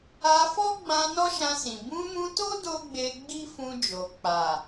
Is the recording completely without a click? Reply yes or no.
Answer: yes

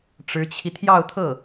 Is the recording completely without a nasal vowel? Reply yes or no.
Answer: yes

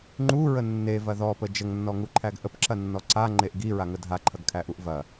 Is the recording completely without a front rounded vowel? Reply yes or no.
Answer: yes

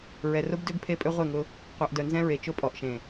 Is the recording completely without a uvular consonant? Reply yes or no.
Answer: no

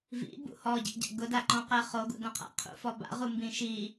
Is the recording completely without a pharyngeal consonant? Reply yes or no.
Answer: yes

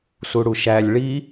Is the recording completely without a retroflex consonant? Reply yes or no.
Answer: no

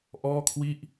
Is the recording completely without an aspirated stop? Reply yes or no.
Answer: no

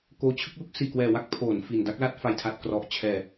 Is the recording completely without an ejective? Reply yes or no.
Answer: yes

